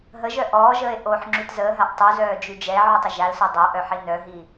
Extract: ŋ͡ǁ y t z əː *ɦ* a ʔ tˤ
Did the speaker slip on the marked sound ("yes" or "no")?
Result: no